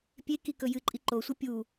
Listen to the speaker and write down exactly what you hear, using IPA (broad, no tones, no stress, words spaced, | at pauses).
pʲe kikɵjɨǃʼi ǃosʷɨ pʲu